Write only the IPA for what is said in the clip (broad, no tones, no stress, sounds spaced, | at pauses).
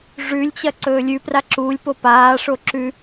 ʐ ʉ lʲ t͡ɕ ɐ ǀ ɵː lʲ ʉ p r a ǁ u lʲ p o p aː ʂ o ǁ ʉ